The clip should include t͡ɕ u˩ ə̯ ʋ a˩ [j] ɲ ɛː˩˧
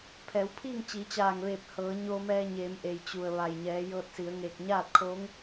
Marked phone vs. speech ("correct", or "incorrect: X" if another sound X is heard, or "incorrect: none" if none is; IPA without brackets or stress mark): correct